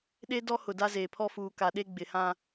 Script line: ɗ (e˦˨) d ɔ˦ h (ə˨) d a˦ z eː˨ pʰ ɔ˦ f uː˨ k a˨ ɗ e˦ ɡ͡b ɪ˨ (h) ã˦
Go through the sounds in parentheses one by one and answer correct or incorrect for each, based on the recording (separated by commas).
incorrect, incorrect, correct